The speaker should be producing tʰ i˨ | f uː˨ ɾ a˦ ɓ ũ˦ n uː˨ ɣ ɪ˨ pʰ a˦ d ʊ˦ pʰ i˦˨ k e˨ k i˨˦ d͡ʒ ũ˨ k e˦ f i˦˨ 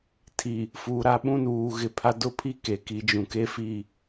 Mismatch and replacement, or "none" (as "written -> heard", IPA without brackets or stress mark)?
none